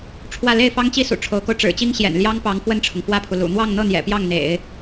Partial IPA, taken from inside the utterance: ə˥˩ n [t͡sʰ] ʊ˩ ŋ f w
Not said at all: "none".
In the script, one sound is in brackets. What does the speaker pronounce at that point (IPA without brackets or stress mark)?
ʈ͡ʂʰ